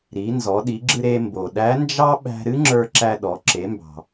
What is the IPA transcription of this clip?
ɾ i˩˧ n z ɔ˩˧ ɗ i˩˧ ɡ͡ǁ ɨ˧ ɾ e˧ m b o˩ ɗ æ˧˥ n d͡ʒ ɑ˥ ɓ æ̤˧ ɾ ɨ˥ ŋ͡ǁ ə˞˧ ǁ æ˧ ɗ ɔ˩˧ ǁ e˩˧ m b ɑ̤˩

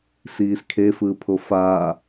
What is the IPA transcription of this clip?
s iː s kʰ e f ɯː pʰ o f aː

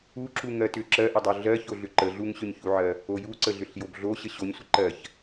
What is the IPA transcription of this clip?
u ǁ u ŋ ɜ t ʏ ǁ ɜ ʔ ə dˤ o ɮ ɜ ç o ɮ ʏ ǃ ə ɮ u ŋ ɕ ʏ ɲ ç u ʕ ɜ | o j u ǀ ə ɮ ʏ ɬ j o b ɮ o ɕ ə ɕ o ɲ sʷ ə ǃ ɜ ç

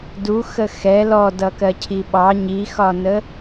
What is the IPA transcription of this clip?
d u x ə x ɛ l ɔ d ʌ k ɜ cʰ i ɓ ɑ ɲ i x ɒ n ə

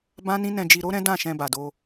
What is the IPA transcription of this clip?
b ã˦ n ĩ˦ n ɛ̃˧ d͡ʒ i˧ ɾ o˦ ɾ ɛ̃˦ d ã˦˨ ʃ ɛ̃˧ b a˨ d o˧

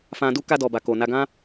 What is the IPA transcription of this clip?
f ã˧ d u˦ k a˧ d ɔ˨ b a˨ k o˨ n a˧ ɡ ã˦

